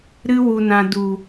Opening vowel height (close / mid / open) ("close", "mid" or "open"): close